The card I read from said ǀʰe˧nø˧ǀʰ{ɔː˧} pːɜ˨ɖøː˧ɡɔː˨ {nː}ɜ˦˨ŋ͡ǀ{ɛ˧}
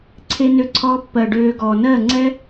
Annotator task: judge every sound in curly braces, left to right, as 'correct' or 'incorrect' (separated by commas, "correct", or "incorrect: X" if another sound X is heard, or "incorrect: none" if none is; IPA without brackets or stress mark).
correct, incorrect: n, incorrect: ɛ˦